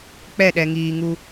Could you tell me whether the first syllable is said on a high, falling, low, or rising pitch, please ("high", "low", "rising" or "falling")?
falling